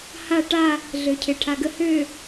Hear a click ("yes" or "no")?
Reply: no